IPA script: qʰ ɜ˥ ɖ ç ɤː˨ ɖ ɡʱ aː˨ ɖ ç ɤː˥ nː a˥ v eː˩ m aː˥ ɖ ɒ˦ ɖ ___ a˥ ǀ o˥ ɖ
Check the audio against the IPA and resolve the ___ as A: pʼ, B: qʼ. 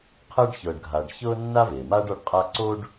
B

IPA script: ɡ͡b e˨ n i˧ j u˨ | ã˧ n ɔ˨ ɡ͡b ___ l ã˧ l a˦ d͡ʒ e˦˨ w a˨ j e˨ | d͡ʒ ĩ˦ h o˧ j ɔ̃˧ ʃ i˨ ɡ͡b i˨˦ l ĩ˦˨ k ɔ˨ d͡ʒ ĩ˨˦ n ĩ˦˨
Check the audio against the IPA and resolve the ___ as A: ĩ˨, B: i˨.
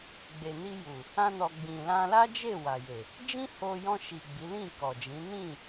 A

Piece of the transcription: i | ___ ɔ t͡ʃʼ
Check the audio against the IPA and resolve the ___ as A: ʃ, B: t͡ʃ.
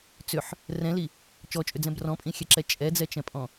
B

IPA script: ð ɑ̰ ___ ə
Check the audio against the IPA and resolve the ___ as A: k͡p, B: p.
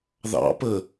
B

